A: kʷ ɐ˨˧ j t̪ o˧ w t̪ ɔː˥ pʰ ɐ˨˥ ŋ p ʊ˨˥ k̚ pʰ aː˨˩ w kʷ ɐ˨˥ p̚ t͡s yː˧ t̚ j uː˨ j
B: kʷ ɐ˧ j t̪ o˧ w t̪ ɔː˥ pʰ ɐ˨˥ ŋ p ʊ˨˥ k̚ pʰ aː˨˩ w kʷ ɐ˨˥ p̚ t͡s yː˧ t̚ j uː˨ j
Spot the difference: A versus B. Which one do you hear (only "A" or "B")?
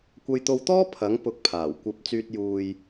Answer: B